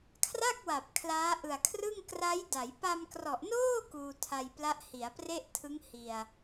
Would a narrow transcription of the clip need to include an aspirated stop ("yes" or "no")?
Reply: yes